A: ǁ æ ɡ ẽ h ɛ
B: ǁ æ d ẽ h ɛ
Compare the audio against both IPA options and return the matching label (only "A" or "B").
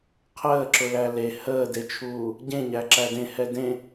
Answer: B